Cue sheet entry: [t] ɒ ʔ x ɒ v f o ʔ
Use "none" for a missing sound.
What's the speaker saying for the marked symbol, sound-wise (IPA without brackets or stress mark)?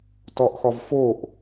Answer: t